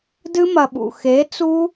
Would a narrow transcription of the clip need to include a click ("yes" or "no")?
no